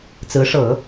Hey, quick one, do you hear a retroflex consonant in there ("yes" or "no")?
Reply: yes